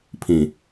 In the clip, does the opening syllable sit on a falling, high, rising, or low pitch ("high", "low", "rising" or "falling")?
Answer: low